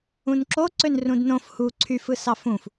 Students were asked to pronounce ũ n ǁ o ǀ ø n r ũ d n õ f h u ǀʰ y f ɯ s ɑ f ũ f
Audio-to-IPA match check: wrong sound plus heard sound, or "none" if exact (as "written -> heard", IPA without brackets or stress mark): none